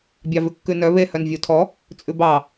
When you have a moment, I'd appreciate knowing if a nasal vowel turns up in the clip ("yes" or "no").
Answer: no